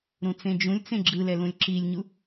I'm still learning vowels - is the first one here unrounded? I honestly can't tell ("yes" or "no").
no